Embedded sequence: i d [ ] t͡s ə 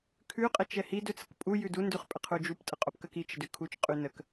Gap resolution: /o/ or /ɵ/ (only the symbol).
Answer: ɵ